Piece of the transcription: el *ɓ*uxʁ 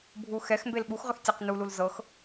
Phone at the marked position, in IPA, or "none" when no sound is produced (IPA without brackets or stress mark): ɓ